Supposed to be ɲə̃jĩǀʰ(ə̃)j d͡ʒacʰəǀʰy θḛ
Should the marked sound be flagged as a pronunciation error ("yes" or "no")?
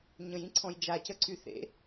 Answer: yes